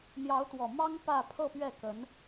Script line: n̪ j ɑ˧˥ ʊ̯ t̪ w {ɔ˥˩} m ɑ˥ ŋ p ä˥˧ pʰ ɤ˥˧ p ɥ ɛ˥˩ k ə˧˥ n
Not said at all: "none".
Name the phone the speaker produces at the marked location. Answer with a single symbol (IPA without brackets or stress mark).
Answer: ɔ˨˩